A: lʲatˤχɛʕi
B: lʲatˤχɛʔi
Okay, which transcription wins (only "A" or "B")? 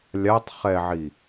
A